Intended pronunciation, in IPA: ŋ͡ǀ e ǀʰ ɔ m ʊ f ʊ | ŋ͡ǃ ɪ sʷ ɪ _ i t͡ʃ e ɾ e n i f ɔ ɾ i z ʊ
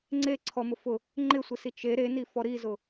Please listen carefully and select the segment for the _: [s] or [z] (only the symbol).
s